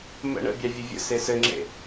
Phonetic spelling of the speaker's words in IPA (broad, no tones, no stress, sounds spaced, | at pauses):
m ə̰ ɳ ə̰ bʲ ɑ vʲ ə vʲ ə̰ s e s ɘ ŋ͡ǁ ḛ